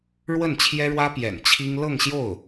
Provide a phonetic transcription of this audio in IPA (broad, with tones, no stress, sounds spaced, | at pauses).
ɻ w ə˥˩ n t͡ɕʰ j ɛ˥ ɻ w ä˥ p j ɛ̰˨˩ n t͡ɕʰ i˥ ŋ l ɤ˥˧ ŋ ɕ j o˥˩ ʊ̯